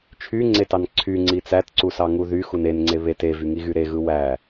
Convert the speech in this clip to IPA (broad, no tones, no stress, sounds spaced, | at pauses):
t͡ʃʰ y ŋ͡ǀ e t ɑ n ǀʰ y ŋ͡ǀ i t͡s æ t ǀ u s ɑ ŋ u ð y x u n e n ŋ͡ǀ e β e t e v y ŋ i ɣ y ɾ e ɣ ɯ w æ